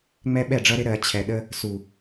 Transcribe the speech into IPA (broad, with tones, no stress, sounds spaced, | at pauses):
ŋ͡m ɛ˦ ɓ ɛ˦˨ ɖ͡ʐ ʌ˦ ɾ ɪ˦ ɾ ɜ˨˦ t͡ɕʰ ɛ˨ ɗ ə˦ | s u˨